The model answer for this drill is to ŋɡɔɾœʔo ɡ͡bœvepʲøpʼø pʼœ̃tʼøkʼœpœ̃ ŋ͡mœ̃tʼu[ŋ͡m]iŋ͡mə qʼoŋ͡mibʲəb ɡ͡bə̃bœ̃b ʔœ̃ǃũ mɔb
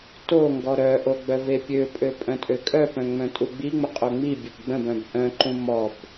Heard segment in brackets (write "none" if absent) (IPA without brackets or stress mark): ɡ͡b